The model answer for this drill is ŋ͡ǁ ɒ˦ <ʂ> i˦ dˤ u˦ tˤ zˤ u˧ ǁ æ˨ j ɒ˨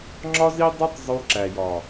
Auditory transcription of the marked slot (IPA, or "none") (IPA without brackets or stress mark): z